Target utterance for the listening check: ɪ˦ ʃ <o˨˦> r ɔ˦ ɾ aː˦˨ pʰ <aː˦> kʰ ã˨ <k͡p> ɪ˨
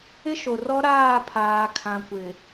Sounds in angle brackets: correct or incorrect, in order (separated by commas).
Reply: incorrect, incorrect, incorrect